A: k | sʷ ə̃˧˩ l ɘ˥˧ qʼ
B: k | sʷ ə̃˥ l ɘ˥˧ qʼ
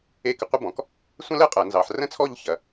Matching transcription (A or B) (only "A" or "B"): B